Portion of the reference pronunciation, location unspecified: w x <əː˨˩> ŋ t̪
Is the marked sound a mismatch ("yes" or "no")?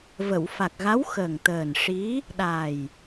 no